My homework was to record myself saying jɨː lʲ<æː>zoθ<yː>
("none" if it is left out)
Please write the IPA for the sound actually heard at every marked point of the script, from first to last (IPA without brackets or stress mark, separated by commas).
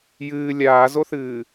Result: aː, ɨː